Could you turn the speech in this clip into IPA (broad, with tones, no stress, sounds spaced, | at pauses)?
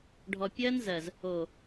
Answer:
ɖʱ ɔ˨ pʲ ɜ˦ n z ɜ˨ z | o˨